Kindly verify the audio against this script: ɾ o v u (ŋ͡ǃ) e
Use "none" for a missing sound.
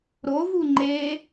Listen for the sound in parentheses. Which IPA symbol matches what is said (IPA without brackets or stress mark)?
ŋ͡ǃ